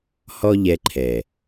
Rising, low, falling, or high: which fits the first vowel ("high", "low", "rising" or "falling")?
high